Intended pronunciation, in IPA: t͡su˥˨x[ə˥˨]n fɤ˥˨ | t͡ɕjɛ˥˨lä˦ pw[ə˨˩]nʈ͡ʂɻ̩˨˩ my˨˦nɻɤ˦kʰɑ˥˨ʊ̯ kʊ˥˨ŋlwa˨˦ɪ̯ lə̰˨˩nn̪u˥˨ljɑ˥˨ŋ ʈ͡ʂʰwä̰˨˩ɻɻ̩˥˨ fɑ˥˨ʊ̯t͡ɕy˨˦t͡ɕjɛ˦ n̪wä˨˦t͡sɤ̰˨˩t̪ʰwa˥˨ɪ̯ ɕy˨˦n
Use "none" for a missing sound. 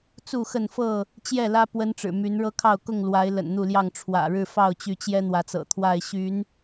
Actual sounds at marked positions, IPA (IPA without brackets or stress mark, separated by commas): ə˥˨, ə˦